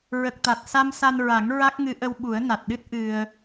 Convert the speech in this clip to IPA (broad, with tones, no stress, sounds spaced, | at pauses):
ɹ ə˨˩ k̚ t̪ a˨˩ t̚ s a˧ m s a˧ n ɹ a˨˩˦ ŋ ɹ a˦˥ k̚ ŋ ɨ˧˥ ʔ ə˧ w ɓ u˨˩˦ ə̯ n a˨˩ t̚ ɗ ɨ˦˥ t̚ ʔ ɨ˧ ə̯